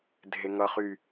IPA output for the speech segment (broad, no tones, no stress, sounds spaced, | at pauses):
dʱ e ŋ ʌ χ y